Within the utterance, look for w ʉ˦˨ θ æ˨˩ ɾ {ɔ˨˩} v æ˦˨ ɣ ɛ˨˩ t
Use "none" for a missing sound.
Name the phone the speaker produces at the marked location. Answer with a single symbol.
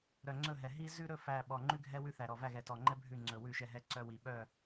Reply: ɔ˨˩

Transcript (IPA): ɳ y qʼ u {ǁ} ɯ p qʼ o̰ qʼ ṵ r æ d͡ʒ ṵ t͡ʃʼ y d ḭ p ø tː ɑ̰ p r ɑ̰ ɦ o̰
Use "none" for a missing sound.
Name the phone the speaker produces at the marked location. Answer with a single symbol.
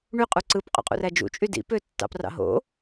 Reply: ǀ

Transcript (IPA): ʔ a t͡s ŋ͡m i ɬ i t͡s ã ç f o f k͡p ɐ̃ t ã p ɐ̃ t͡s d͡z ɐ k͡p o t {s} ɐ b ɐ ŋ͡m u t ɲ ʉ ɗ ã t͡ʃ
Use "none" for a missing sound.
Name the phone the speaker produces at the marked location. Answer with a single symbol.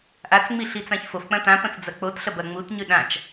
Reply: ɬ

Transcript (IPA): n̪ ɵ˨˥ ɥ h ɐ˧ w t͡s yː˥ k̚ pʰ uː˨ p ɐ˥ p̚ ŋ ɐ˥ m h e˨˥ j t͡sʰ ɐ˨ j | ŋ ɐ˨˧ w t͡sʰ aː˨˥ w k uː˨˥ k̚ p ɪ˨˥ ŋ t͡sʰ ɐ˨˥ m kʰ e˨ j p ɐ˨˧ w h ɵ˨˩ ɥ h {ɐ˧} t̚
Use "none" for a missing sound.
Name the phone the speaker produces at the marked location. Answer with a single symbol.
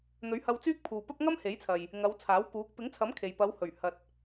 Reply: ɐ˧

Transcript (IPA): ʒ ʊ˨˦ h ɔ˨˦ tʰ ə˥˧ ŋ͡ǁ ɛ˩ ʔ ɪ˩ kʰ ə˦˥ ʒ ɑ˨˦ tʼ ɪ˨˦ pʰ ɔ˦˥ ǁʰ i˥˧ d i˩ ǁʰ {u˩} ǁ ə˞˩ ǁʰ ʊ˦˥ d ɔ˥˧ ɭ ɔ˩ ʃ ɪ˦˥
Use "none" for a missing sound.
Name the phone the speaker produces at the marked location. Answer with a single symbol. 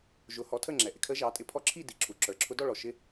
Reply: u˩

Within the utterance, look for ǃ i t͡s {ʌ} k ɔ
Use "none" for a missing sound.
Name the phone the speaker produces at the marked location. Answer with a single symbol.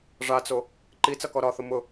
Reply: ʌ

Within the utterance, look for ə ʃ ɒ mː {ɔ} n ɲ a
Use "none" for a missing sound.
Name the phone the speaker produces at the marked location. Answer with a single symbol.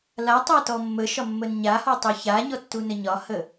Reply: ə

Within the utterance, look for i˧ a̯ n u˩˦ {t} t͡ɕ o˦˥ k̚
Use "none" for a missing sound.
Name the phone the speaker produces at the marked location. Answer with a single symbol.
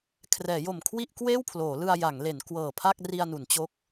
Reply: n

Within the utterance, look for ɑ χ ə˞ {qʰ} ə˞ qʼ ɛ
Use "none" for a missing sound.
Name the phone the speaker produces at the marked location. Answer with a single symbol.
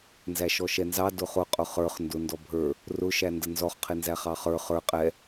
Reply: χ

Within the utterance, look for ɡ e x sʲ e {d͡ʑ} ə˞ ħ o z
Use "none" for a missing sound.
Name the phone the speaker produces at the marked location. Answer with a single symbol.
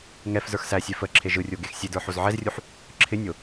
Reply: d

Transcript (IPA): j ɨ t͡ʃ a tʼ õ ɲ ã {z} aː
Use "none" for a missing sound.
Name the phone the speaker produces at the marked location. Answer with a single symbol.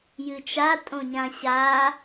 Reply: ɕ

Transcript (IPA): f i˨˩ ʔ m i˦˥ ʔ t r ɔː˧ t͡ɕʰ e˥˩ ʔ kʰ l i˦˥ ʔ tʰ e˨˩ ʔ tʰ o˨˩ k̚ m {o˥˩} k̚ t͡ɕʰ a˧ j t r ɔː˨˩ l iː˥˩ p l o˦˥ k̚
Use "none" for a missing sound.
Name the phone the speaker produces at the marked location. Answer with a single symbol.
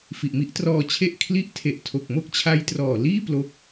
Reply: o˥˩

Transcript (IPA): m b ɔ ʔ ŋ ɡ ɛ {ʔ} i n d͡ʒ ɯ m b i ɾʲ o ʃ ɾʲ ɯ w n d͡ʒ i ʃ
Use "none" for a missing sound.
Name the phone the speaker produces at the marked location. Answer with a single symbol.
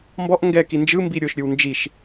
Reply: k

